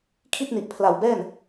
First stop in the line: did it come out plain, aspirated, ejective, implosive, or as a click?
aspirated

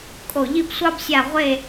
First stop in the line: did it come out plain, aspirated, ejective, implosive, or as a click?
ejective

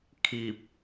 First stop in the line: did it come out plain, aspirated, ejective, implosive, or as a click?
aspirated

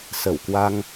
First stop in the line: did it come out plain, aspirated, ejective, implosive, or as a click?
plain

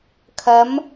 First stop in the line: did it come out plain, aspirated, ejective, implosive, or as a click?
aspirated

